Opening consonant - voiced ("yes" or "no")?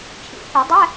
no